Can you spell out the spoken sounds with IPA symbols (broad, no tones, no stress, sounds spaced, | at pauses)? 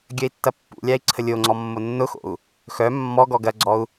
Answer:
ɡʲ ɐ i̯ tː ɐ pː ṵ lʲ a i̯ ǀʰ ə lʲ o ŋ͡ǀ ɔ mː o nː ʊ x o̰ u̯ | x œ mː ɔ ɡ ɔ ɡ ɐ ɡ͡ǀ ɔ u̯